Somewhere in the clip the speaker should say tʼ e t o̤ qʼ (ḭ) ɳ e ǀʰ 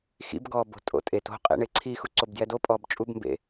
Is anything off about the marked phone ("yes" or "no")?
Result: yes